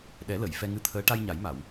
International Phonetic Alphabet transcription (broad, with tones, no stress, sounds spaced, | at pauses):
ɗ ɛ˨˩˦ l ə˨˩˨ j f ɛ˧ ŋ ɨ˧ t̪ʰ əː˧˥ ʈ a˧ j ɲ a˨˩˦ j m a˨˩˨ w